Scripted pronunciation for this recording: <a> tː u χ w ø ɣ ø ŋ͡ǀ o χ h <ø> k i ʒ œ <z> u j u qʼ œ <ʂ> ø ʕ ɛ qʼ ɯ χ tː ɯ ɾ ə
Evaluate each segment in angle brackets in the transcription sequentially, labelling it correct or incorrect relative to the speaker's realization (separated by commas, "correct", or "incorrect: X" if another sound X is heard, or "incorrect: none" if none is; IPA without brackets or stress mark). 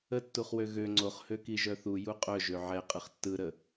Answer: incorrect: ə, correct, incorrect: θ, incorrect: ʒ